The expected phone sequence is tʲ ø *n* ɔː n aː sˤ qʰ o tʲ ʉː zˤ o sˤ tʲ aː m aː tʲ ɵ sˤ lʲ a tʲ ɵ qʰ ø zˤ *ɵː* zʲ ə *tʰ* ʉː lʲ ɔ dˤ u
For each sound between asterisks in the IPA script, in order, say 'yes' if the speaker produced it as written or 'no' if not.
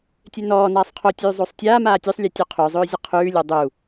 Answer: yes, yes, no

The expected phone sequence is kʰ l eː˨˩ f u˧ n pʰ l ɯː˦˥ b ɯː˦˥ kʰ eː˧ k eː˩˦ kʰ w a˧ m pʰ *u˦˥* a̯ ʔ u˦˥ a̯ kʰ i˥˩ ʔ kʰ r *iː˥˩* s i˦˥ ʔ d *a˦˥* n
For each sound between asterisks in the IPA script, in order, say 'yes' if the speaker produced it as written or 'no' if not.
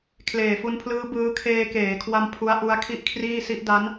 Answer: yes, yes, yes

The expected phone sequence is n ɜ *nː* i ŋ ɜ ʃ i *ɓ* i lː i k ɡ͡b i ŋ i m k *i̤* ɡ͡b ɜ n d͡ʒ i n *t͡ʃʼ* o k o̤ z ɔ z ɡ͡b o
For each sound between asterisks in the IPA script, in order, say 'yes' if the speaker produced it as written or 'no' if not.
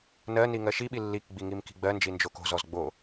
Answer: no, yes, yes, no

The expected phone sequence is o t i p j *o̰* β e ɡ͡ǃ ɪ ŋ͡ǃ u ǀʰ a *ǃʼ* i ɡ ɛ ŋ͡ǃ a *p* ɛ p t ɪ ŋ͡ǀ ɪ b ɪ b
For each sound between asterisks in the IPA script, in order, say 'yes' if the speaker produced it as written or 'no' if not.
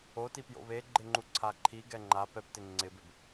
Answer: yes, no, yes

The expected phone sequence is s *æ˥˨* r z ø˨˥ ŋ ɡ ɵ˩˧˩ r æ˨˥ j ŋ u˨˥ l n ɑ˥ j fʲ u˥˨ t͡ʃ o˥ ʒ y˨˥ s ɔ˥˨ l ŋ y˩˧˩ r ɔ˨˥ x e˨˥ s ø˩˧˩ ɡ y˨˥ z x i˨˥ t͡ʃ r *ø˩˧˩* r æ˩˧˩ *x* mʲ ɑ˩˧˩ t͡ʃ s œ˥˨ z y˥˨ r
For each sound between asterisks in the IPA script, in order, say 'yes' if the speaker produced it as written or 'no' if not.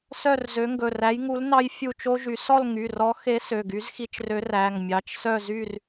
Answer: no, no, no

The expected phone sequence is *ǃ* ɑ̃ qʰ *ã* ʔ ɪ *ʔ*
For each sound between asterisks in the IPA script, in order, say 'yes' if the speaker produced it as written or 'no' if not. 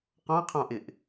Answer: no, no, yes

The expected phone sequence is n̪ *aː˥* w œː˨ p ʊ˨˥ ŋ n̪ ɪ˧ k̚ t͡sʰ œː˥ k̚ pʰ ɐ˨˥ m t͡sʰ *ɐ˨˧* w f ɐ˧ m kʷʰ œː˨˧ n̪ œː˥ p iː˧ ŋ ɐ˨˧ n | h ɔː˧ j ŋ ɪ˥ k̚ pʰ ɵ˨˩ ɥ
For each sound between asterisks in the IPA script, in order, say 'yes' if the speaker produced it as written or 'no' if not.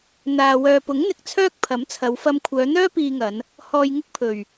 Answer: no, yes

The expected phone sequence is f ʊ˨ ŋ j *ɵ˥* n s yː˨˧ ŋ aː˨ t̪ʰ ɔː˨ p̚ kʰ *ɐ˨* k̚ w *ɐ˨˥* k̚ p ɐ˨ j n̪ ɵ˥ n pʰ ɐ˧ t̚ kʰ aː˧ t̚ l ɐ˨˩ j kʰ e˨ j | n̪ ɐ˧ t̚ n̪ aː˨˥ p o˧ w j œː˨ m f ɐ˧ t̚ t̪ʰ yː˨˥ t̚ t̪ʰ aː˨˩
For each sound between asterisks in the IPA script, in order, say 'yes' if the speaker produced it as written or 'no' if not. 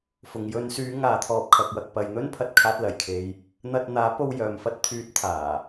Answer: no, yes, no

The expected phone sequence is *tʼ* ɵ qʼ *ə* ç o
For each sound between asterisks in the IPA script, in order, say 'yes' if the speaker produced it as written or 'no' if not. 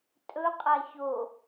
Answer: yes, no

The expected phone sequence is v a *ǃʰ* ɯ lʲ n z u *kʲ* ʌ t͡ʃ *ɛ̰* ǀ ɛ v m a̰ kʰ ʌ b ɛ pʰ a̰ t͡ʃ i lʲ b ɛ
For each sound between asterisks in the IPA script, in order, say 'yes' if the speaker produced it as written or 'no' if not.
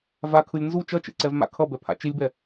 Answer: no, no, no

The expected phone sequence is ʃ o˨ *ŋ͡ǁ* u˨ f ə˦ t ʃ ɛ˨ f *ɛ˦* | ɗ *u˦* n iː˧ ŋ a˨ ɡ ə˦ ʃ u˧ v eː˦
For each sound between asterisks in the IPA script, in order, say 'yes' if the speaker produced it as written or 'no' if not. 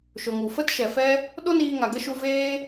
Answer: no, yes, no

